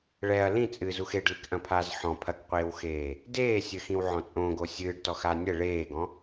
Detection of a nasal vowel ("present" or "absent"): present